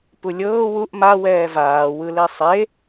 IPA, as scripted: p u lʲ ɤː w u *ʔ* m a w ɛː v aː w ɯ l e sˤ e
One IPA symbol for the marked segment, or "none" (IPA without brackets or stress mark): ʔ